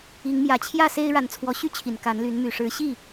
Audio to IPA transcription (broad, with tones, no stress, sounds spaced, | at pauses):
i˨˦ ŋ m j ä˨˦ t͡ɕʰ j ä˥˨ s e˦ ɪ̯ ɻ a˨˦ n t͡sʰ w ɔ˨˦ ɕ y˦ t͡ɕʰ i˨˩ n k a˨˦ n l y˨˦ n m y˨˩ ʂ ɻ̩˨˦ ɕ i˥˨